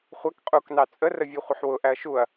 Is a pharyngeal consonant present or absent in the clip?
present